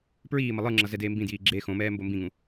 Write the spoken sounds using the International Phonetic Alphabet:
p ɹ iː m ʌ lˠ ɯ ŋ͡ǁ ʌ z ɛ d eː m b ĩ d j iː ɡ͡ǁ eː x õ m ɛː m b o m b ĩ ŋ ũ

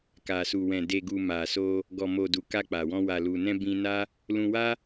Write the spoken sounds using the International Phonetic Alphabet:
k a˨ s u˨ w ɛ̃˨ d e˨ ɡ u˨ m a˨ s o˧ | ɡ ɔ˨ m o˨ d u˨ k a˧ k͡p a˨ w ɔ̃˧ w a˨ l u˨ n ɛ̃˧ b ĩ˧ n a˦ | l ũ˧ w a˦

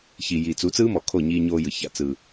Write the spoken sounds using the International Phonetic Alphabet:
ç i˨ j i˨ t͡s u˨˦ t͡s ɯː˦ m ɔ˨ kʰ o˦˨ ɲ iː˧ ɲ oː˧ j ɯ˨ ç a̰˨ t͡s ɯ˨

